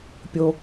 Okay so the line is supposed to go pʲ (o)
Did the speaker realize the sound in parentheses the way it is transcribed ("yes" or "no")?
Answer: yes